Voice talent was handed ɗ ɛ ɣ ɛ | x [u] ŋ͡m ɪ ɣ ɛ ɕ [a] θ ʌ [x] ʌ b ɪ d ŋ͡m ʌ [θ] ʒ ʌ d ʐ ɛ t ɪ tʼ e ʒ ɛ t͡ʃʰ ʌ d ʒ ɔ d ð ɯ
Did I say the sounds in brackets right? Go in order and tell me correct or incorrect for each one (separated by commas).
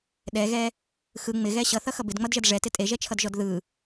incorrect, incorrect, correct, incorrect